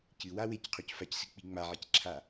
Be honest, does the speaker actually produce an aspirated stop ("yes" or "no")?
yes